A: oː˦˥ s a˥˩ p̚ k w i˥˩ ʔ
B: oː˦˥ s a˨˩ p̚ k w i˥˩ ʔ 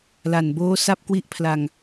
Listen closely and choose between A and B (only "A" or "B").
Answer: A